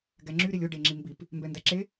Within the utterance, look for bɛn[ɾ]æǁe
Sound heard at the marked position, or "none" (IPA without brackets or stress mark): d